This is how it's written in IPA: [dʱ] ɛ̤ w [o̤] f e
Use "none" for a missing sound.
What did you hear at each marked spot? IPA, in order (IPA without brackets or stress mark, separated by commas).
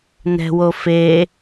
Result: n, o